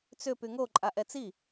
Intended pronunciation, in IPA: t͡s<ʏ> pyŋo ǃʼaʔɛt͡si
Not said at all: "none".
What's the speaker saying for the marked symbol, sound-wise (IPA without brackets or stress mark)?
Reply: ʏ